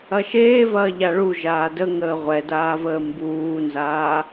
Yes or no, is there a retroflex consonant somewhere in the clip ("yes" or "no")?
yes